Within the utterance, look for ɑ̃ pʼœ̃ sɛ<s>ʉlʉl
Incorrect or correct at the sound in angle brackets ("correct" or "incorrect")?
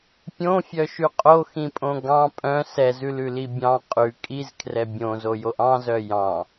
incorrect